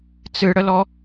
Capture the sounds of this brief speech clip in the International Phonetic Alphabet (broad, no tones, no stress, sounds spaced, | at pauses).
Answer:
t͡s ɨ ɽ ə l ɔ